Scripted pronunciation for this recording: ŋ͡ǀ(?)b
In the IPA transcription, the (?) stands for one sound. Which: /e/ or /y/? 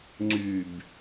y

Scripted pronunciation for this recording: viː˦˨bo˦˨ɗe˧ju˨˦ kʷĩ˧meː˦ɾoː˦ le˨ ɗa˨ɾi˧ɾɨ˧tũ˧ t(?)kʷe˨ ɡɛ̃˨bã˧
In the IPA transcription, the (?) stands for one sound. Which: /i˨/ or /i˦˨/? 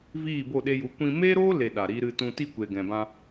i˦˨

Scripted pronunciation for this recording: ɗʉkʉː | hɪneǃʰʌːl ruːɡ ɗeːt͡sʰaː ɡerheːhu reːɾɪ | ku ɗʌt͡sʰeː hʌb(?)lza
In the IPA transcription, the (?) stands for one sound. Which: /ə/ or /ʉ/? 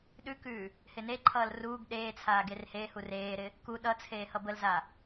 ə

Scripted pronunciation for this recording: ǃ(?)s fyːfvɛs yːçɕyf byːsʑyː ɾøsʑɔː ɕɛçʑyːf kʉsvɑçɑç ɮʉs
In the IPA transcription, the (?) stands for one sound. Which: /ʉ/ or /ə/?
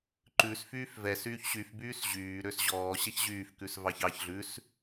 ʉ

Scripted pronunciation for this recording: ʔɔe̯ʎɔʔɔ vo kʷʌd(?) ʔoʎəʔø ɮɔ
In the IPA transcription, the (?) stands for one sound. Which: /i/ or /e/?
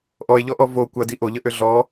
i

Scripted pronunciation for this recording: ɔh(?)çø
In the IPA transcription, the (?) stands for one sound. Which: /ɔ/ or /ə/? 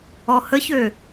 ə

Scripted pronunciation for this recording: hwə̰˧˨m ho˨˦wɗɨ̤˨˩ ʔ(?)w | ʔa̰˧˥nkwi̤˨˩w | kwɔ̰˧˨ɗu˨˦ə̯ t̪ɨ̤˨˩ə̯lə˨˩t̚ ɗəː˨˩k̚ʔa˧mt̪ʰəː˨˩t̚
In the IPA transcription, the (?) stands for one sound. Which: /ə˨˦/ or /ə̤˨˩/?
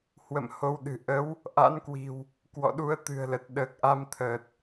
ə˨˦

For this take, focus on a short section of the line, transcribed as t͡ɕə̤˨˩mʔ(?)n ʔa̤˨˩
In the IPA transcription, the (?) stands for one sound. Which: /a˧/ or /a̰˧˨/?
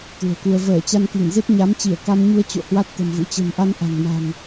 a˧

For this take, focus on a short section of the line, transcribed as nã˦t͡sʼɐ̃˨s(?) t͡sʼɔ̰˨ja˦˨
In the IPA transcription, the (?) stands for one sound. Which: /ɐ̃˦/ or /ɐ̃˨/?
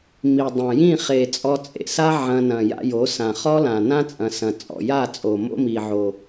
ɐ̃˨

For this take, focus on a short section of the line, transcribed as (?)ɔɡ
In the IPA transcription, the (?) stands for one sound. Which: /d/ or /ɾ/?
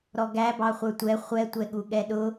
ɾ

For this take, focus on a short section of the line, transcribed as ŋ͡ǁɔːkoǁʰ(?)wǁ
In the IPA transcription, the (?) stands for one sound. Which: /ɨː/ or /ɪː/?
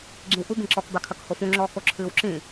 ɨː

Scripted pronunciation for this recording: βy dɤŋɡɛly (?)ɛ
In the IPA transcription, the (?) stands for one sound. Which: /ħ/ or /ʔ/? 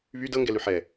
ħ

